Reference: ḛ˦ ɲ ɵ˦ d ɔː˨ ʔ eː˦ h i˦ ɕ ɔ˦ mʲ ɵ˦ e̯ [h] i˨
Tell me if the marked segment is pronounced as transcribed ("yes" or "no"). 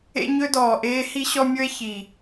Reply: no